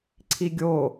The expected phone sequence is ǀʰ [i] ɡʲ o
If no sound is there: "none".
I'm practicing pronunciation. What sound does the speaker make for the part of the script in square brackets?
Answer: i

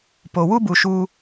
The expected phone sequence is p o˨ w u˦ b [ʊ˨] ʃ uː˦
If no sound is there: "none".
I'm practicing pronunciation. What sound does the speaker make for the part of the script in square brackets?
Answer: u˨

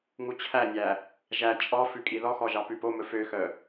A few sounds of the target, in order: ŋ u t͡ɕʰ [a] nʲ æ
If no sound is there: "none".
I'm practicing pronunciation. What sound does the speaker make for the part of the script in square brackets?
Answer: æ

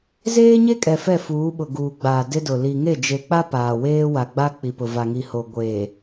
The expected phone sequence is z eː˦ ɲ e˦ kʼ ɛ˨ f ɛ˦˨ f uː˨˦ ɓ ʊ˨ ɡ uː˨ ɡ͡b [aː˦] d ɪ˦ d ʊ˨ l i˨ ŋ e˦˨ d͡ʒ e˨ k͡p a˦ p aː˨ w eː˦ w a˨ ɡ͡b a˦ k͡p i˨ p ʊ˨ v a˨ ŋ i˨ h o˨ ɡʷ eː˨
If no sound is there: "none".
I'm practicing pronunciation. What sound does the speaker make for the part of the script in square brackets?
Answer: aː˨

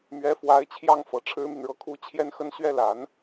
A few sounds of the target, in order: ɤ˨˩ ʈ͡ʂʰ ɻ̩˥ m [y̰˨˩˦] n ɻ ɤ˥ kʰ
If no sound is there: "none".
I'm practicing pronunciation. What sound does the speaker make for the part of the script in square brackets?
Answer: y˨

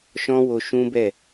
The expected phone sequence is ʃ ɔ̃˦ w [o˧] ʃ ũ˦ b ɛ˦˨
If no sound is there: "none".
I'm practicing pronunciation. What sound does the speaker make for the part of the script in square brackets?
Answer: o˧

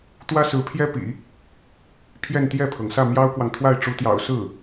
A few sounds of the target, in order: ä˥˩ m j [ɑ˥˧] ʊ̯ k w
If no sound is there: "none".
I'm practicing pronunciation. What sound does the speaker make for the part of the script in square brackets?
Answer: ɑ˥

